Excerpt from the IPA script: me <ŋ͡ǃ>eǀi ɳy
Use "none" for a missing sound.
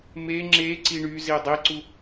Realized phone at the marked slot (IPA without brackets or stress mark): ŋ͡ǁ